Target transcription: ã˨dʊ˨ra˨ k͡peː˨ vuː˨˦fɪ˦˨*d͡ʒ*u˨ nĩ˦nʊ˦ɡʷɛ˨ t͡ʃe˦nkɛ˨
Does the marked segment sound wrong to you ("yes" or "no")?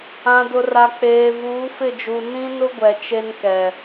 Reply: no